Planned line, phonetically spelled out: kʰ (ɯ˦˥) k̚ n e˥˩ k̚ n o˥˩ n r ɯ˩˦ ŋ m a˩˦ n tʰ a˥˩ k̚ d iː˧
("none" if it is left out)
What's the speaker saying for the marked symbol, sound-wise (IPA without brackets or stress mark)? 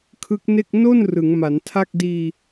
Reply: ɯ˦˥